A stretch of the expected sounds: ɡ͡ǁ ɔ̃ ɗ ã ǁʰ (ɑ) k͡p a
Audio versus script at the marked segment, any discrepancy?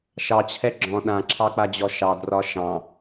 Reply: no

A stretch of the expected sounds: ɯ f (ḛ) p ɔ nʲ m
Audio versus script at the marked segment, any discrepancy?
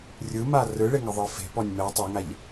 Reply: yes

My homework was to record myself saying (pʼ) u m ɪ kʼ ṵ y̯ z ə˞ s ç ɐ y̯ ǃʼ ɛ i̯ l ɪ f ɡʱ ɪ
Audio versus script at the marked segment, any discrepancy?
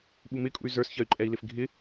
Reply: yes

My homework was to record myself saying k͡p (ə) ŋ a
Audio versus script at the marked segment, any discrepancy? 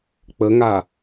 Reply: no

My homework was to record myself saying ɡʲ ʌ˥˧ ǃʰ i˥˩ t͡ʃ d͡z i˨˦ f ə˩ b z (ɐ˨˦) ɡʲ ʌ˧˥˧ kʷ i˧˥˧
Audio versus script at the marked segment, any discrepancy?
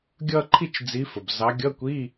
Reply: yes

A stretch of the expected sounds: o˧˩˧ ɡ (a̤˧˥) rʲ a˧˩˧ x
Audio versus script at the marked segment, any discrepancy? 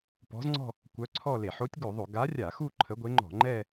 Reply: yes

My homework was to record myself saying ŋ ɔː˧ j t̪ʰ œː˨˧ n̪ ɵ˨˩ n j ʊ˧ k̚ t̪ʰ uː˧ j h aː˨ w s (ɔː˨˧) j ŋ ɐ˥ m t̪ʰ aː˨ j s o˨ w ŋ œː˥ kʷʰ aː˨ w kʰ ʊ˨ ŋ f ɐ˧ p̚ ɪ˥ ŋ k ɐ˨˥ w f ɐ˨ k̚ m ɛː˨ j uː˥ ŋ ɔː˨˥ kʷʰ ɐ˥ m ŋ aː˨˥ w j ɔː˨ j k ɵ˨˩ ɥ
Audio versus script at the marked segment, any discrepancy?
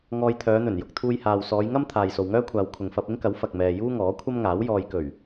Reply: no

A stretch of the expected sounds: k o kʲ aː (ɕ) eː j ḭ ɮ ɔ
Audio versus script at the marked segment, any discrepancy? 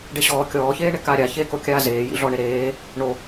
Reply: yes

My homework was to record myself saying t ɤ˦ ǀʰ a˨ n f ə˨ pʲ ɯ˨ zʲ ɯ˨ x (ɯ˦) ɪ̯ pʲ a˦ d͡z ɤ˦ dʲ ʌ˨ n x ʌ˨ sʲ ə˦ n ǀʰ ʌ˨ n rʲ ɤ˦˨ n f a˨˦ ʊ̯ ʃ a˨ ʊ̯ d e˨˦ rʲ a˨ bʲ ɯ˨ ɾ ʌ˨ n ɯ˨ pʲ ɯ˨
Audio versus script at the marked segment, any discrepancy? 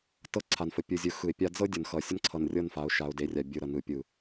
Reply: yes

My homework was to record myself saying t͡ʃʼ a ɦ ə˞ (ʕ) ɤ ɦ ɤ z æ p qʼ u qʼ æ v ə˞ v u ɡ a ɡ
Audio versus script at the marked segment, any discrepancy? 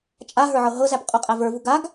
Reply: no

